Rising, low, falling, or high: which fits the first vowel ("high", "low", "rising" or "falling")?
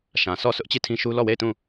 low